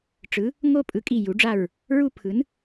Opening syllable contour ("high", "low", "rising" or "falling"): rising